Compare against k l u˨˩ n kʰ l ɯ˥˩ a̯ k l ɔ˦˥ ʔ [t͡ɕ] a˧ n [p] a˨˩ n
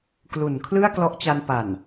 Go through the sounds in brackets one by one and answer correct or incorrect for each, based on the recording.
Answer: correct, correct

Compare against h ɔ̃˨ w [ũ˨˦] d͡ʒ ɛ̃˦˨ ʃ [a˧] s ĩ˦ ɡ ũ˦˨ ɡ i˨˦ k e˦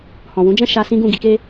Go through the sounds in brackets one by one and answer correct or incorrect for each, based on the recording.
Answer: correct, correct

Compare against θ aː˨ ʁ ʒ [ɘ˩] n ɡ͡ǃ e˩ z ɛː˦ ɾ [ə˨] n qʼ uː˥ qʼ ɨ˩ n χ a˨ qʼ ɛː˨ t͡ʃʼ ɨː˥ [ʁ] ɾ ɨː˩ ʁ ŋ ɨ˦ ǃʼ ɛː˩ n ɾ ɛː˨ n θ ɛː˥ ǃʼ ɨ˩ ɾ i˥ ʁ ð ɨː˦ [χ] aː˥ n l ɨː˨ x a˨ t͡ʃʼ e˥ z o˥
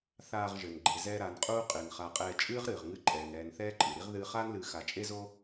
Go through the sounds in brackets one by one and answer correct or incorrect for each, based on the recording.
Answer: correct, incorrect, correct, correct

